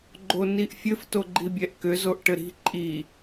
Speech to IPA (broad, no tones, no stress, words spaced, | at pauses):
ɡ͡ǃoniʔfʲɘf toɡ͡ǃibʲɛʔkʏ zoʔʈɘɾi̤ ǃʼi